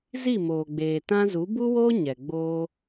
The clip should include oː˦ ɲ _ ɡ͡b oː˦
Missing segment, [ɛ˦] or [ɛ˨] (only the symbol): ɛ˨